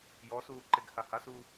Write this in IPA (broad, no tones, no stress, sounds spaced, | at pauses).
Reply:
j ɔ s uː ǃ e ɡ h a h a s u